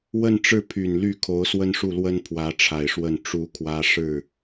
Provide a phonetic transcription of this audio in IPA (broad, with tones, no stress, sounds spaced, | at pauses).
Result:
w ə˥˧ n ʈ͡ʂ ɻ̩˥˩ pʰ y˨˩ n l y˥˩ kʰ o˧˥ ʊ̯ s w ə˥ n ʂ u˥˩ l w ə˥ n pʰ w ä˧˥ ʈ͡ʂʰ a˨˩ ɪ̯ ʂ w ə˥˩ n ʈ͡ʂ u˥ kʰ w ä˥ ʂ ɻ̩˥˩